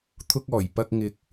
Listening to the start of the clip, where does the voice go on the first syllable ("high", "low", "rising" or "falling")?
low